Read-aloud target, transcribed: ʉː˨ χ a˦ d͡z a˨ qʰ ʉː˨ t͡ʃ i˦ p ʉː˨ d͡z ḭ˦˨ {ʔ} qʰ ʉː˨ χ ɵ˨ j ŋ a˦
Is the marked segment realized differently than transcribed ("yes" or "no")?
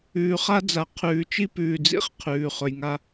yes